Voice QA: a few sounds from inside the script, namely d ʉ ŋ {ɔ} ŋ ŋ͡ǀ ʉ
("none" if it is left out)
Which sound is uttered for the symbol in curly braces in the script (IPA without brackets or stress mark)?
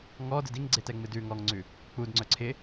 ɔ